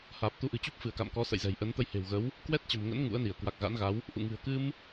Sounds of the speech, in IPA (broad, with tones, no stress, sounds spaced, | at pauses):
h aː˨˩ p̚ t̪ u˨˦ ʔ ɨ̤˨˩ t͡ɕ u˦˥ p̚ f ɨ˧˩ ə̯ k a̰˧˨ m k ɔ˨˦ s ə̰˧˨ j z ɛ̤˨˩ j ʔ ə˨˦ n t̪ ə˧ j h e̤˨˩ w ɣ ə˨˦ w | k w ɛ˦˥ t̚ t͡ɕ ə̤˨˩ m ŋ ə̰˧˥ n ŋ ṵ˧˥ ə̯ n i˧˩ ə̯ k w a˨˩ k̚ ɣ a̰˧˥ n ɣ a˨˦ w | ʔ ṵ˧˨ ŋ ɨ̤˨˩ ə̯ k ɨ˧ m